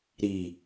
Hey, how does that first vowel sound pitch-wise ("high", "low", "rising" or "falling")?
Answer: low